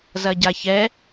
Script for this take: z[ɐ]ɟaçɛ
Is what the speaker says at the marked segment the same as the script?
yes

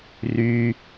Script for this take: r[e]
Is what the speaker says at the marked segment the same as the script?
no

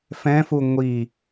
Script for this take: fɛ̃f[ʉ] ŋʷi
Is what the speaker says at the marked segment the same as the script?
no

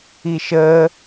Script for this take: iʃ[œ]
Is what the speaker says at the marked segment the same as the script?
no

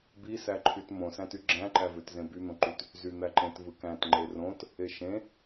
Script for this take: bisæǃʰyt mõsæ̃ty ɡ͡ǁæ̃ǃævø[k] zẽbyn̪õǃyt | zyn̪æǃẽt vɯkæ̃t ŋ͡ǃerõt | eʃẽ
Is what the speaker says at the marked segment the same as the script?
no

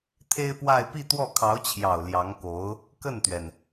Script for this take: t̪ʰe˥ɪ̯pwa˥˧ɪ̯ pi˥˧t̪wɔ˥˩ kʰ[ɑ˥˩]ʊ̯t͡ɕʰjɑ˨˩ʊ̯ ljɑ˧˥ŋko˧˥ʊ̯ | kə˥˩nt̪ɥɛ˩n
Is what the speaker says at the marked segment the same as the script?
no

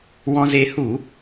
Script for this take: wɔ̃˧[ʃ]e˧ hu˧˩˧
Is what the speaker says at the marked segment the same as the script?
no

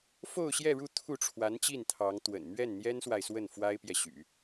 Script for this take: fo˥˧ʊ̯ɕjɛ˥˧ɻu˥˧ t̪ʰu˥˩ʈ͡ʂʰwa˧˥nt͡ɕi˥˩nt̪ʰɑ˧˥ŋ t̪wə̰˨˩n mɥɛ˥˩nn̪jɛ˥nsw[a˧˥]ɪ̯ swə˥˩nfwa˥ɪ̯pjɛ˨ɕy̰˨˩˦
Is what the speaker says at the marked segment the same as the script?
no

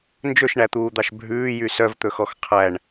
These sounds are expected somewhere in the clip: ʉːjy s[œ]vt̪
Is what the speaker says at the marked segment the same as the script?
yes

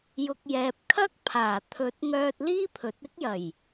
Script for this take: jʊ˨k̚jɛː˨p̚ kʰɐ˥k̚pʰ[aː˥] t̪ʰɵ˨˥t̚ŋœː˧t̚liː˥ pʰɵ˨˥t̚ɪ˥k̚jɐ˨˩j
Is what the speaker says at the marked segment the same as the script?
no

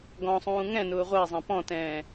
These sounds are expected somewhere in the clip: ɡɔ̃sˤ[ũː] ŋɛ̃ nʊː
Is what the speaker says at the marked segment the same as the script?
yes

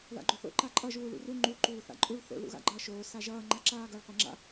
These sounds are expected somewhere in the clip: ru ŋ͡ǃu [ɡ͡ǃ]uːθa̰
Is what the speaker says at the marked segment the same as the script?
no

